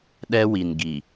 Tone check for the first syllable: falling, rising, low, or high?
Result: high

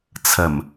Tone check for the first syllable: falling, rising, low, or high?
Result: low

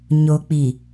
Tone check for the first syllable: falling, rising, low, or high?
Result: low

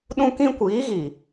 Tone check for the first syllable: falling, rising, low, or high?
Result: high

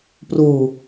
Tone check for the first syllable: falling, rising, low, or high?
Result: low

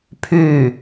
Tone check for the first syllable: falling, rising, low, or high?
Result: falling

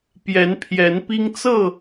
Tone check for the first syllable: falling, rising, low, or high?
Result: rising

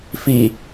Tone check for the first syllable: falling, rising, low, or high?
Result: low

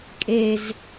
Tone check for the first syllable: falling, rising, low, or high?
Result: low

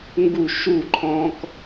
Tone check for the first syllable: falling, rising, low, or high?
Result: falling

